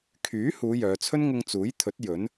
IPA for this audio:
kʰ yː˨˥ h uː˨˧ j œː˨˧ t͡sʰ ɵ˥ n ŋ ʊ˧ ŋ t͡s uː˨˥ j t̪ʰ ɵ˨˥ t̚ j ɵ˨˥ n

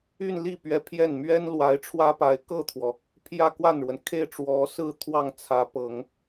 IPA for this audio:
y˥˧ n l i˥˩ p ɥ ɛ˧˥ pʰ j ɛ˥˩ n m ɥ ɛ˥ n l w a˧˥ ɪ̯ ʈ͡ʂʰ w ä˥ p a˧˥ ɪ̯ k ɤ˥˩ t̪ʰ w ɔ˩ | pʰ j ä˥˧ k w a˥˩ n ɻ w ə˩ n kʰ e˥˩ ɪ̯ ʈ͡ʂ w ɔ˧˥ s ɹ̩˥˧ t̪ʰ w ɑ˥˩ ŋ t͡sʰ ä˧˥ p ɤ˨˩˦ ŋ

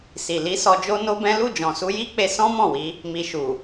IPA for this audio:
s i˨ l i˨˦ s ɔ˧ d͡ʒ o˦ n o˦ b ɛ̃˦ l u˦˨ d͡ʒ ɔ̃˨ s u˧ j i˦ k͡p e˧ s ɔ̃˦ m ɔ̃˦˨ w i˧ | m i˨ ʃ u˨

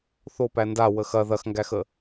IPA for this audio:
θ o p æ n d a w ə x ɐ ð ɐ x ŋ ɡ æ x ə

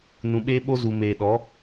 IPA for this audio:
n ũ˨ ɓ eː˦ ɓ o˦ z u˨ m eː˨ ɗ ɔ˨˦

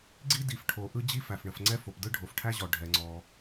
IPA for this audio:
ɡ͡ǀ i˥ d i˩ f ʈʰ o˩ ʔ ɯ˥ d͡ʑ i˥ f æ˩ f ɳ ə˩ f ŋ͡ǀ ɛ˥ f o˩ p d ɯ˥ ɖʱ o˩ f ʈʰ æ˥ ʑ ɔ˩ ɖʱ ɛ˩ ŋ͡ǀ ɔ˩

